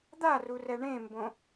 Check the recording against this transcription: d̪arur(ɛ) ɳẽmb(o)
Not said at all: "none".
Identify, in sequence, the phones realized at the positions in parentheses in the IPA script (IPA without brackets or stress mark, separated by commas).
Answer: ɛ, õ